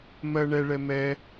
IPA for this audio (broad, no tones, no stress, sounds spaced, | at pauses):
m ɜ ɳ ɛ ɭ ɛ m ɛ